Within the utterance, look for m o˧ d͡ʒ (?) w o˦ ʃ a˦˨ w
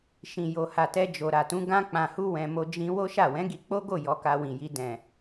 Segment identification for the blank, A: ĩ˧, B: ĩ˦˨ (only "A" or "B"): A